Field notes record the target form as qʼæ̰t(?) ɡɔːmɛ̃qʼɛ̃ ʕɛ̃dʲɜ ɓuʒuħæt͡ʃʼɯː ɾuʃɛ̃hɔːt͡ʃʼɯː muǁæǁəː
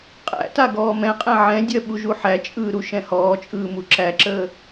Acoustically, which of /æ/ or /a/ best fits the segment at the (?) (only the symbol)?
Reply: a